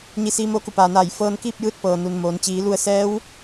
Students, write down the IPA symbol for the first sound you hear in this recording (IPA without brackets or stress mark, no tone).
ɲ